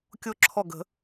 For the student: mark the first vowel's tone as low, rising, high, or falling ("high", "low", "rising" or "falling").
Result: high